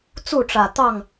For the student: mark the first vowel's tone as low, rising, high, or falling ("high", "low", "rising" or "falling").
falling